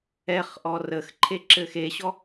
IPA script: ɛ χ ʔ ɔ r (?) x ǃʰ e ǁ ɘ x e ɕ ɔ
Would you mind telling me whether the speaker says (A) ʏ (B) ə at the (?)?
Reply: B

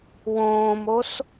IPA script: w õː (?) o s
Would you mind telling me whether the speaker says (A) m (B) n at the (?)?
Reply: A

